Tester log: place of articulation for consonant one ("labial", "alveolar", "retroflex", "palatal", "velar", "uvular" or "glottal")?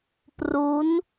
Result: labial